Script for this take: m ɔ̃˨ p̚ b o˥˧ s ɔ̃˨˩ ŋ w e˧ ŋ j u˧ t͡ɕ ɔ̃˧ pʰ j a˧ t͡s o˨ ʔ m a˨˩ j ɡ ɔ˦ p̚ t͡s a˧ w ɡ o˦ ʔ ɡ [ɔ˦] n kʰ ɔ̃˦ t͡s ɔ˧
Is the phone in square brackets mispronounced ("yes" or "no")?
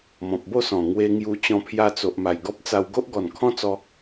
yes